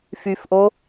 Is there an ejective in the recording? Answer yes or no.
no